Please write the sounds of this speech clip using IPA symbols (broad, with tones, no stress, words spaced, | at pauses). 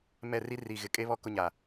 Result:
mɛ˦˨ri˦ ri˨ɣɪ˨ kʼe˦βɔ˦ kʊ˦ɲa˨